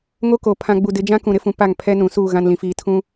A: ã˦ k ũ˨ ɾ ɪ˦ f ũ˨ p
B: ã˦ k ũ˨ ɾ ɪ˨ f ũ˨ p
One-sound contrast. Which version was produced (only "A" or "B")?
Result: A